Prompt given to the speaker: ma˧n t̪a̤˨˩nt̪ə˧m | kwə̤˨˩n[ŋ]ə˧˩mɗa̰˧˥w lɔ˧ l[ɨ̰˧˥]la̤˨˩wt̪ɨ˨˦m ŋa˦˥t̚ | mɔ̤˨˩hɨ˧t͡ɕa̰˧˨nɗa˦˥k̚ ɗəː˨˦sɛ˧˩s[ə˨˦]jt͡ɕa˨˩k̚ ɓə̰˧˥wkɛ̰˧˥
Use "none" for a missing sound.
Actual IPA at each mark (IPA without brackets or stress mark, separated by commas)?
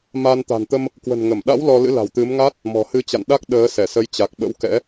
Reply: ŋ, ɨ̰˧˥, ə˨˦